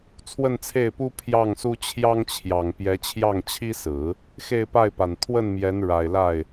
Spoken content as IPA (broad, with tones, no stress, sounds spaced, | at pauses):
t͡sʰ w ə˥˧ n t͡sʰ e˥˩ ɪ̯ p u˥ pʰ j ɑ˥˩ ŋ s u˥ t͡ɕʰ j ɑ˥ ŋ t͡ɕʰ j ɑ˨˩ ŋ p j ɛ˧˥ t͡ɕʰ j ɑ˥˩ ŋ t͡ɕʰ i˥ s ɹ̩˨˩˦ | x e˥˧ ɪ̯ p a˥˩ ɪ̯ p a˨˩ n t̪ʰ w ə˥˩ n m j ɛ˧˥ n ɻ a˨˩ ɪ̯ l a˥˩ ɪ̯